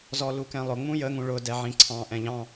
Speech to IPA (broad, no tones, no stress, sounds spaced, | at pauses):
z ɔ l u k ɛ̃ lˠ ʊ ŋ͡m ũ j ə ŋ ũ ɭ ʊ d ɛ ʕ ĩ ǀʰ ɑ̃ ʔ ɛ̃ ʎ ɑ̃